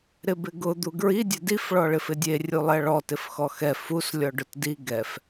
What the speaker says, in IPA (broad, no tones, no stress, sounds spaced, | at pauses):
ɾ ɪ b ɪ ɡ ʊ d̪ u ɡ ɹ i dʲ ɛ d i f ɭ ɔ ɭ ɪ f ɪ dʲ e rʲ u lˠ ɛ ɭ ɔ t ɪ f x ɔ x ɛ f u s lʲ ɔ ɖ ʊ t d i ɡ ɛ f